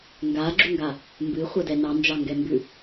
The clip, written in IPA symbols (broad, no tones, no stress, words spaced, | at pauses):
ŋɡaɡ͡ǁuŋɡa | mbɨχʷɛdɛ nɑnd͡ʒɑŋɡɛmbʉ